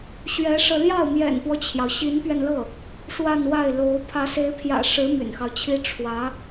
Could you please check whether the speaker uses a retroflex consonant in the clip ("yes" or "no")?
yes